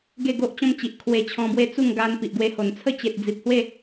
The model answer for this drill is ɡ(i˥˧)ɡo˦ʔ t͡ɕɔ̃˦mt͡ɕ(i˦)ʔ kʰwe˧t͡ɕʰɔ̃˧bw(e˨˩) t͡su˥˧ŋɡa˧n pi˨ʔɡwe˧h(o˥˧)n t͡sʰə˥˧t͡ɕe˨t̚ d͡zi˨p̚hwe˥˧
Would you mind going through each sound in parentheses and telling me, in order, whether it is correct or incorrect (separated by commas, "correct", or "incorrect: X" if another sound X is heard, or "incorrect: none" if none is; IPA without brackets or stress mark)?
incorrect: e˥˧, incorrect: i˨, incorrect: e˦, incorrect: o˨˩